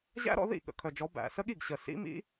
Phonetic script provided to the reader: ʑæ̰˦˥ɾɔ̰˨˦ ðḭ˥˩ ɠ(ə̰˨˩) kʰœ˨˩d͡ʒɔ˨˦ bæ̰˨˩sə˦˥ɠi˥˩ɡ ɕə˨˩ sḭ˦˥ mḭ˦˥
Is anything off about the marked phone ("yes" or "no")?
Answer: no